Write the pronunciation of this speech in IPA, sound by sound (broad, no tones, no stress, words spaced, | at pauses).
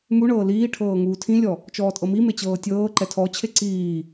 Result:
muɳɤː liːʈʰɤː ŋuːtʰĩlʲɔ | t͡ʃɔːtʼɤmime t͡ɕɤːtʲɤːǃɛ tʰɔt͡ɕʰe ǀiː